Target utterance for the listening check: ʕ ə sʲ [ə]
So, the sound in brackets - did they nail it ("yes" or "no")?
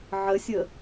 yes